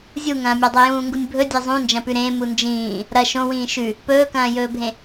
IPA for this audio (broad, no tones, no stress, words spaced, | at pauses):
zʲuŋɐ̃ːmʲadˤo jũːŋɡunʲbʱɵ dʲezˤũnd͡ʒɐ̃pʉ ɾẽ mund͡ʒĩː | ɾɐ ʃõwĩː ʃʉ | pɵːkɐ̃ːjɵːbʱẽ